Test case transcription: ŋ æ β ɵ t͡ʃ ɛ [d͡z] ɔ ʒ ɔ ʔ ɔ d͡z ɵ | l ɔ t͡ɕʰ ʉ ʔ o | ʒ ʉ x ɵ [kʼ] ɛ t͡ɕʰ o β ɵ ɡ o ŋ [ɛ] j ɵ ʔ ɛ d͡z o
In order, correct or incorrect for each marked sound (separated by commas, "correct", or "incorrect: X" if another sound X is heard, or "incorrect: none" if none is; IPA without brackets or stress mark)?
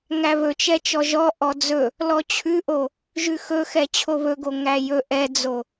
incorrect: t͡ʃ, incorrect: x, incorrect: æ